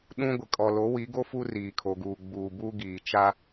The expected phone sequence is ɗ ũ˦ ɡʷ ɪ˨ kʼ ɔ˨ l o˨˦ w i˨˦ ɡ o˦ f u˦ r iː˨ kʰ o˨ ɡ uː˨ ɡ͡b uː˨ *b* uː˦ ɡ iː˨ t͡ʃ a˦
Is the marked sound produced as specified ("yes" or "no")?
yes